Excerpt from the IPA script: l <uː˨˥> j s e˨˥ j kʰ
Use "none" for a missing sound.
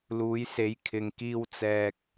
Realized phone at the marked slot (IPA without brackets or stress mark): uː˨˥